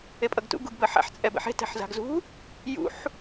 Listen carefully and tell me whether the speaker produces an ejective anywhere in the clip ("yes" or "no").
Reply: yes